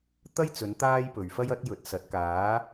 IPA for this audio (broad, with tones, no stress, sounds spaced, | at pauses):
t̪ ɐ˥ j t͡s ɵ˨˧ n t̪ aː˥ j p ɵ˨ ɥ f ɐ˥ j ɐ˨˥ t̚ j ɵ˨ t̚ s ɐ˨˥ t̚ k aː˨˥